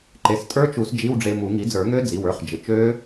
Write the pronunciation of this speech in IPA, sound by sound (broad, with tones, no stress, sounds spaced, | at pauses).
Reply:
ǃ e˩˧˩ s tʼ ə˞˦˥ t͡ʃ u˨˩˦ s d͡ʒ i˧˥˧ w ɖ͡ʐ e˧ m u˨˩˦ ŋ i˩˥ d͡z ə˞˨˩˦ ŋ ø˦˥ d͡z i˩˧˩ w ə˞˧˥˧ χ d͡ʒ ɪ˩˧˩ t͡ʃ ø˦˥